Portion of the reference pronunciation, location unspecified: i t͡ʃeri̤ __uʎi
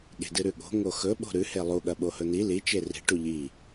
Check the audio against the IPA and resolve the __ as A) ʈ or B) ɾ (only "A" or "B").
A